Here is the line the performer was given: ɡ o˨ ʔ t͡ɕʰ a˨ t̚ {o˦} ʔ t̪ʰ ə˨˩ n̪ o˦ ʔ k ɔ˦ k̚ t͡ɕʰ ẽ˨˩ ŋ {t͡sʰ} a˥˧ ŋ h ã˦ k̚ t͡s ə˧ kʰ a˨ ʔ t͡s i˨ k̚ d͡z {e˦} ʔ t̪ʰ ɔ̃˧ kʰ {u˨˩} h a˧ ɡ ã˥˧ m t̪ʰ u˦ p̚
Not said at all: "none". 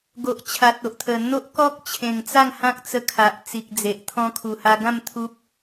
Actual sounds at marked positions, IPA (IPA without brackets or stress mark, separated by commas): o˨, t͡s, e˨, u˨˩